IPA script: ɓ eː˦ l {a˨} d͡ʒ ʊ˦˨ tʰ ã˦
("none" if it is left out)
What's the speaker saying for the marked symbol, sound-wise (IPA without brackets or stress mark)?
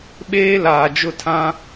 aː˨